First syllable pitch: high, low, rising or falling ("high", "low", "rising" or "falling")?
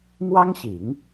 high